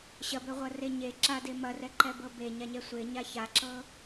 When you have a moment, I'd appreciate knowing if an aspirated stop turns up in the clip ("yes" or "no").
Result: no